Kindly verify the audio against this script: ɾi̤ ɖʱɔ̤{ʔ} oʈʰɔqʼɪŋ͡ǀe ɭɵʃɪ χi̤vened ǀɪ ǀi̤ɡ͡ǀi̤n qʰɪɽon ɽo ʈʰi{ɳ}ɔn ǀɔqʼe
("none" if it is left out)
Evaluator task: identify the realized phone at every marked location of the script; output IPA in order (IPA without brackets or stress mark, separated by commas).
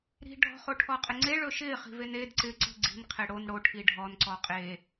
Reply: χ, ɖʱ